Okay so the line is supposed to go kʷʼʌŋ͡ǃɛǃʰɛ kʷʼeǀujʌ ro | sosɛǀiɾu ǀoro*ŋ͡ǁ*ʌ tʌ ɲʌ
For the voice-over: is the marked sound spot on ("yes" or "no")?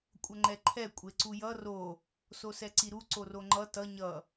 no